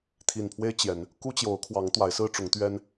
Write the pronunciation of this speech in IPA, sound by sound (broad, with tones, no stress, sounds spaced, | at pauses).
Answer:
t̪ʰ i˨˩ n pʰ w e˦ ɪ̯ t͡ɕ j ɛ˨˦ n | k u˦ t͡ɕ j o˨˦ ʊ̯ kʰ w ɑ˨˦ ŋ t̪ w a˨˦ ɪ̯ s ɹ̩˦ ʈ͡ʂ ʊ˨˦ ŋ t̪ ɥ ɛ˦ n